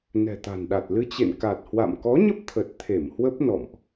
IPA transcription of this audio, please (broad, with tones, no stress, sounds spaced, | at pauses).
n ɛ̤˨˩ t̪ a̤˨˩ n ɗ a˨˩ t̚ l ɨ˧ t͡ɕ ḛ˧˨ n k a˨˩ t̚ h w a̰˧˨ m k ɔ˨˦ ɲ ə˦˥ p̚ t̪ʰ ə˨˩ t̚ t̪ʰ e˧˩ m h w ə˦˥ p̚ n ɔ̰˧˨ m ʔ